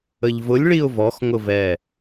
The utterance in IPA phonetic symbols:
ə ʎ v ʊ lʲ ɭ i ʊ̯ v ɔ x ŋ ʊ v ɛ

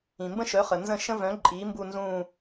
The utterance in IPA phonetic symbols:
ĩ˩ m b ə̃˦ ʃ œ˩˥ χ ə˩ n z ə̃˦˨ ʃ ə̃˦ v œ̃˩˥ ǃʼ iː˩˥ m b u˦˨ n z ũː˦˨

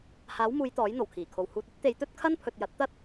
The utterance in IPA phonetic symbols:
h aː˨˥ w m uː˨˧ j t̪ ɔː˨˥ j n̪ o˨˩ w kʰ iː˨˩ kʰ o˨ w h uː˨ t̚ ɐ˥ t̚ t̪ e˨˧ j t̪ ɵ˥ t̚ kʰ ɐ˥ n pʰ ɵ˨ t̚ j ɐ˨˥ t̚ t̪ ɐ˥ t̚

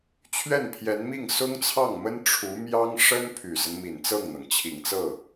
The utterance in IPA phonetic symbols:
t͡ɕʰ ɥ ɛ˥˩ n pʰ j ɛ˧˥ n m i˥˩ ŋ s ʊ˥ ŋ t͡sʰ ɑ˥˩ ŋ m ə˥ n ʈ͡ʂʰ u˧˥ m j ɑ˥ ŋ ʂ ə˥ n pʰ y˨˩ s ə˦ n m i˨˩ n t͡s ɤ˥˩ ŋ n̪ ɤ˩ ŋ t͡ɕʰ i˨˩ ŋ t͡s ɤ˥˩

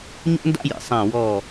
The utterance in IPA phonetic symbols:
ɲ o̰˥ n d a̰˥ j ḭ˩ sˤ ã˦˨ w ɔ˦˨

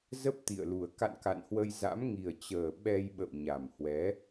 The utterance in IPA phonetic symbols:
z ə˦˥ p̚ t̪ ḭ˧˨ ə̯ l u˨˩ ə̯ k a̰˧˨ n k a̰˧˨ n h w ə˧ j z a̰˧˥ m ŋ i˨˩ ə̯ t͡ɕ əː˨˩ ɓ ɛ˧ j ɓ ə̰˧˨ w ɲ a˨˩ m h w ɛ˨˦

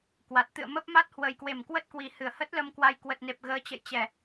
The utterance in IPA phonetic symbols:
k w a˨˩ t̚ t̪ ɨ̰˧˨ ə̯ m ə˦˥ p̚ m a˦˥ t̚ h w ə˨˩ j k w e˧˩ m k w ə˦˥ t̚ k w i˨˩ h ɨ˧˩ ə̯ h ə˦˥ t̚ l ə˧ m k w a˨˦ j k w ə˨˩ t̚ n e˨˩ p̚ ɣ əː˨˦ t͡ɕ ə̰˧˨ j t͡ɕ ɛ˧˩˨

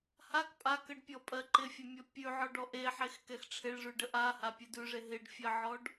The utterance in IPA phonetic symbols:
h a k pʼ a k ə ɖ pʲ ɔ pʼ ɜ ǃ ɪ fʲ ɛ mʲ ɔ pʲ ʉ ʕ ɔ ɖ ɔ ʔ e ħ e x k ɛ x ʈ͡ʂʰ ɪ ɭ ʐ ʉ ɖ ə ʔ a h a pʲ ʉ d ʉ ʐ e ɦ ɪ ɖ fʲ ɜ ʕ ɔ ɖ

